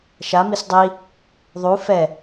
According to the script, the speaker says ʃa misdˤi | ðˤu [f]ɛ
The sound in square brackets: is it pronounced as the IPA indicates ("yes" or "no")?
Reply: yes